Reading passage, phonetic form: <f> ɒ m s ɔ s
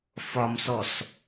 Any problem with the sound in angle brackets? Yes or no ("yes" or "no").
no